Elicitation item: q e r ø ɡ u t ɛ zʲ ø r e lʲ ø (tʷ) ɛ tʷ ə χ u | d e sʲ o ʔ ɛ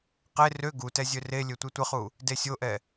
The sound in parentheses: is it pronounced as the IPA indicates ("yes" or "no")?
yes